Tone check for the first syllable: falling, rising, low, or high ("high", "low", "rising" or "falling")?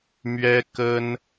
high